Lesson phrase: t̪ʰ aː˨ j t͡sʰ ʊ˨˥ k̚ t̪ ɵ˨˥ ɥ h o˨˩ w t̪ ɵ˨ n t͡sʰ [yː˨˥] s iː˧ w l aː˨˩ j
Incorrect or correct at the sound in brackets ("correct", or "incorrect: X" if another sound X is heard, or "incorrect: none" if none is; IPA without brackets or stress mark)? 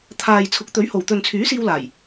correct